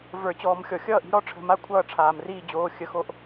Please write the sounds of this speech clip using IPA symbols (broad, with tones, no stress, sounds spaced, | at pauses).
v ə˞˨˩˦ t͡ɕ ɔː˨˩˦ m xʲ ɔ˩ xʲ ʌː˥˩ ʔ i̤˧˥ ɾ ɔ˧˥ ʈ͡ʂʰ ə̤˩˧˩ m a˥˩ kʷʰ ʌː˥˩ ʈ͡ʂʰ aː˩ m r iː˥˩ d͡ʑ oː˩˧˩ xʲ ə˩˧˩ x o˨˩˦ ʔ